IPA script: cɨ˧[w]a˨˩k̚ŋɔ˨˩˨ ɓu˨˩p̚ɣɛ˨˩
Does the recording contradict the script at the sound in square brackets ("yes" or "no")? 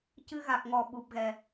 yes